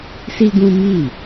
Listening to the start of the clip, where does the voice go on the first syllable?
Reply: high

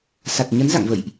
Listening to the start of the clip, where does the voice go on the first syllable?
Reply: low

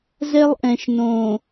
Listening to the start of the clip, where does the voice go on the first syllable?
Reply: high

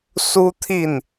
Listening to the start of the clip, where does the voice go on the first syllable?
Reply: high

